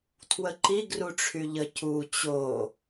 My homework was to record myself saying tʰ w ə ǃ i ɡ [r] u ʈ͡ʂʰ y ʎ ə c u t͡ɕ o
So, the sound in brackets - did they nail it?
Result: yes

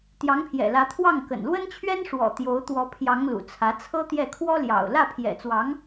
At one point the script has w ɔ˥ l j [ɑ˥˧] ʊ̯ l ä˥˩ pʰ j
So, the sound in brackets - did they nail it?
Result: no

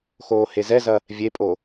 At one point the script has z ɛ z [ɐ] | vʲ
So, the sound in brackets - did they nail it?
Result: yes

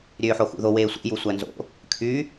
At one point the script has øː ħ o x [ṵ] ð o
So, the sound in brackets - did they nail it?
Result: yes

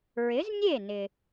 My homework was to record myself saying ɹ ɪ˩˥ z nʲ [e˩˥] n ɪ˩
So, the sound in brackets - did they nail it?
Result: no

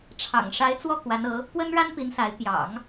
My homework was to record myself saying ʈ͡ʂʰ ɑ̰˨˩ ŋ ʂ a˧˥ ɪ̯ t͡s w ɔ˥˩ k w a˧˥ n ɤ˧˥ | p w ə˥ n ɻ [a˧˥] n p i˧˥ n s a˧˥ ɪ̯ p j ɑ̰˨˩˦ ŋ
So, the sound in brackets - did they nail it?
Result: no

